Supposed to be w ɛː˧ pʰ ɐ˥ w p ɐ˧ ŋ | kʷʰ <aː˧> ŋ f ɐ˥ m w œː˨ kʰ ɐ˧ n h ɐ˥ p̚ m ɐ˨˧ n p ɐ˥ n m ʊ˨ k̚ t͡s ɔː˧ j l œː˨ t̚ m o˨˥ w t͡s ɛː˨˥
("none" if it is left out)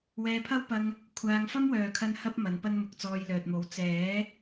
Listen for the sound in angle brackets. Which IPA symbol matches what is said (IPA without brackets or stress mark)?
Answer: aː˧